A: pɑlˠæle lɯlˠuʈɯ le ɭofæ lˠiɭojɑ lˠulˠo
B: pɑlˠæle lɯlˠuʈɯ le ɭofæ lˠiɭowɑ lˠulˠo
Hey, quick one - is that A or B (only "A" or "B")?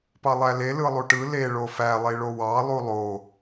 B